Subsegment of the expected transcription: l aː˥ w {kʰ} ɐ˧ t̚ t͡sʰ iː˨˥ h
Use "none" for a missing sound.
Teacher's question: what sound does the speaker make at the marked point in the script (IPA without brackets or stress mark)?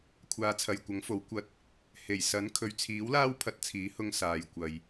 pʰ